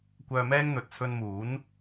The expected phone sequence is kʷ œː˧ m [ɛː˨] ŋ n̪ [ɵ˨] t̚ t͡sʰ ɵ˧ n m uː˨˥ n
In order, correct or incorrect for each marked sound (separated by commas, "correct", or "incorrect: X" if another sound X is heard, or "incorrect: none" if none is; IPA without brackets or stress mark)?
incorrect: ɛː˥, correct